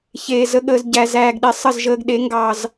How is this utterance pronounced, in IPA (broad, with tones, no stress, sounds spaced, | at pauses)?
ç eː˨ z ə˧ ɠ əː˨ z ɟ æ˨ z æː˨ ɡ ɗ e˨ sˤ ə˦˨ z ʒ əː˧ ɡ ɗ e˨˦ ŋ ɡ ɑ˨ z